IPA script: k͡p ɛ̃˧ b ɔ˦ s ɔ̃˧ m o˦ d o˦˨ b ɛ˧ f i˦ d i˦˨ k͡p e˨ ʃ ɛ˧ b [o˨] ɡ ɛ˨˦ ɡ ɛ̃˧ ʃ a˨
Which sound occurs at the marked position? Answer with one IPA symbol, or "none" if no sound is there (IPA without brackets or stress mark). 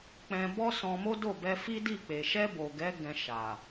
o˨